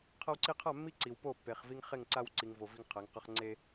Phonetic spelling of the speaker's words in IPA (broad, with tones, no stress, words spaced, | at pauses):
qʰʌ˦wǀi˦ qʰa˦˨mːi˦ǀi˨w po˦˨pːe˨χ vi˦ŋχe˦˨ŋ ǀa˦wǀi˨ŋ vo˨ vi˦ŋqʰɛ˨˦ŋqʌ˦χ ŋ͡ǀe˦